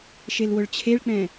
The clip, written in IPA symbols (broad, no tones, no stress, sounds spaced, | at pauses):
ʃ e l w ʊ ɭ t͡ɕʰ e ɭ k͡p ɛ̃